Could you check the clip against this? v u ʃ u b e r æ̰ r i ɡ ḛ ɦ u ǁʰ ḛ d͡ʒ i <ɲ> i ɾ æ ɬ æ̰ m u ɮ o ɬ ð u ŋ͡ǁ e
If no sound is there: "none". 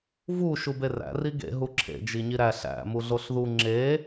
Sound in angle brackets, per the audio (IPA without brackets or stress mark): ɲ